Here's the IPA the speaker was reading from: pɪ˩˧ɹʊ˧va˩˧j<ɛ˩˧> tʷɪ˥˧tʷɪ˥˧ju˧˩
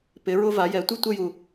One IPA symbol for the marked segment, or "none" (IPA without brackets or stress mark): ɛ˩˧